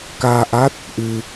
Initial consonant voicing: voiceless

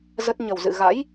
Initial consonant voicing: voiced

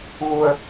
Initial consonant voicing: voiced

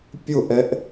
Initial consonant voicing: voiceless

